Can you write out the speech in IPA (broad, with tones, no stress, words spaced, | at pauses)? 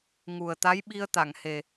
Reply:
ŋu˨˩ə̯t̪a˧˥j ɓi˧ə̯t̪a˨˩˨ŋhe˨˩